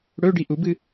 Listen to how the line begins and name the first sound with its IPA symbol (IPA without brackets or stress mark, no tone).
ɽ